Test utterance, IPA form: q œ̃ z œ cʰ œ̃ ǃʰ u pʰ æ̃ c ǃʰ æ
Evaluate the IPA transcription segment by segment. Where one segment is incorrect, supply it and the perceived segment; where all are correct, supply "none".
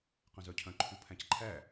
none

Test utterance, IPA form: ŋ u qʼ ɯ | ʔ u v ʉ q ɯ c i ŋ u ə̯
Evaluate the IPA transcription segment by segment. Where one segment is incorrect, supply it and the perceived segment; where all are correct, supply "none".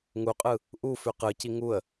v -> f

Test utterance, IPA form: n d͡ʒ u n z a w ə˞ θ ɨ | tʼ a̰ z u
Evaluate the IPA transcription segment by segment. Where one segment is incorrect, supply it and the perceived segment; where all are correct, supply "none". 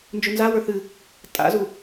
none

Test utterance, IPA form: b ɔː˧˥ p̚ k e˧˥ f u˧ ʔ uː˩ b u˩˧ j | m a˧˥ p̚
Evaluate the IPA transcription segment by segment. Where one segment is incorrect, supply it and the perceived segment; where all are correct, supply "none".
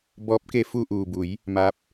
none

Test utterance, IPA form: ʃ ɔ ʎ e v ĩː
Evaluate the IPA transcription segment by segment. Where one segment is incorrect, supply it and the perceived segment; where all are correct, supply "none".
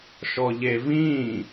none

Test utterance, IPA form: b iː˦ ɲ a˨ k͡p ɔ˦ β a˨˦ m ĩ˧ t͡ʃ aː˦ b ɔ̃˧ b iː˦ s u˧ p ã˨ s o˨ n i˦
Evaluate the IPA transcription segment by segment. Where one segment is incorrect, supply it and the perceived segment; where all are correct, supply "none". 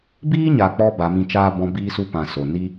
β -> b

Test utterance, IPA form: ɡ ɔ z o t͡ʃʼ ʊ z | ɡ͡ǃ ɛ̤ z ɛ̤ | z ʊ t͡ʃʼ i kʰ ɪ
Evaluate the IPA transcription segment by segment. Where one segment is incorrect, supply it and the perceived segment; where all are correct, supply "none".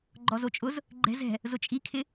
ɡ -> ɡ͡ǃ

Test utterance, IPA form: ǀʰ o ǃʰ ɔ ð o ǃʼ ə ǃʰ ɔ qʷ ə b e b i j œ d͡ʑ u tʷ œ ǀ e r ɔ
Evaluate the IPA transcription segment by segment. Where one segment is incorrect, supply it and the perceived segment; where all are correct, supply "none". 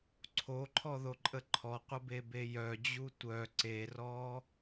i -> e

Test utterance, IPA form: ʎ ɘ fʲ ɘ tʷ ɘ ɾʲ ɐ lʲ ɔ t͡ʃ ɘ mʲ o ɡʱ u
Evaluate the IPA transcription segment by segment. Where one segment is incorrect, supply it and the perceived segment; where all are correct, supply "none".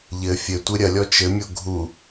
none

